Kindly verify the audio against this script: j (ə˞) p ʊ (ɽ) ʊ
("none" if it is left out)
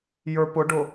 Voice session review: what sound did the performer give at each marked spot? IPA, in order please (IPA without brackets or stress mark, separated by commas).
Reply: ə˞, ɖ